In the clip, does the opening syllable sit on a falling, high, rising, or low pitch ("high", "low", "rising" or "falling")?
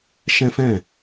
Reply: high